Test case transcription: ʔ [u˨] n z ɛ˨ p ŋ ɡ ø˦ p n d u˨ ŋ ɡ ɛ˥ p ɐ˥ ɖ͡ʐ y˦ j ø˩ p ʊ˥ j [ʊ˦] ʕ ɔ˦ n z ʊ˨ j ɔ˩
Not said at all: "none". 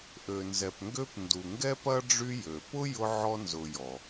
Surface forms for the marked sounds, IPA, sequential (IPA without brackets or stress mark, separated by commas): ø˨, ʊ˦